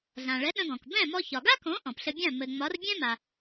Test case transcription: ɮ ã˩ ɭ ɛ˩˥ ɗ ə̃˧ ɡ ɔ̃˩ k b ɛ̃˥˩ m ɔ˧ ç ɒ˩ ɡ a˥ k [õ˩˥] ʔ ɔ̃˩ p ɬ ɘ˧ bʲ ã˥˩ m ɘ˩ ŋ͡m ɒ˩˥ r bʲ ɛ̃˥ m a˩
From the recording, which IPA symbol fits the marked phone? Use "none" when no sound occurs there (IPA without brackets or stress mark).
õ˩˥